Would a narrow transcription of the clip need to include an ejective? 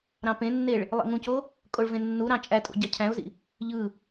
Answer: yes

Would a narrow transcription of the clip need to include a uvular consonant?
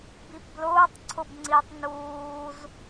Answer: no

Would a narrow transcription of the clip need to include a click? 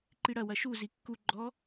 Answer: yes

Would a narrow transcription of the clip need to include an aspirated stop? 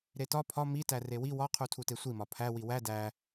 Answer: yes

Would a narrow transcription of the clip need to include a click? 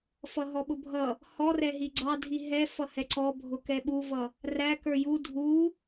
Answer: yes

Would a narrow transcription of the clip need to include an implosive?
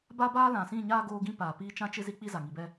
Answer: no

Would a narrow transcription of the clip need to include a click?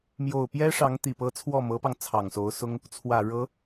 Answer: no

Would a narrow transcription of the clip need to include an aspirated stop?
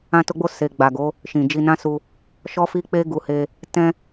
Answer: no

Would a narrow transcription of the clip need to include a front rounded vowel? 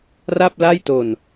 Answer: no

